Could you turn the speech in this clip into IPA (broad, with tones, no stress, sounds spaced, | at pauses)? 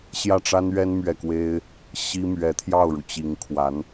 ɕ j ä˥˩ ʈ͡ʂ a˥ n ɥ ɛ˥ n m ɥ ɛ˥˩ k w e˥ ɪ̯ | ɕ i˥ m ɥ ɛ˧˥ t̪ʰ j ɑ˥˩ ʊ̯ ɻ u˩ t͡ɕ i˧˥ ŋ kʰ w a˧˥ n